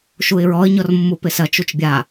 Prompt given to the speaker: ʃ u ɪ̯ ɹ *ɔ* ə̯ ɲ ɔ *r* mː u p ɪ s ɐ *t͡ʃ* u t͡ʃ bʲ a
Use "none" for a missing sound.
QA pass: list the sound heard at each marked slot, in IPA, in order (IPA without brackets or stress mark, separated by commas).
ɔ, r, t͡ʃ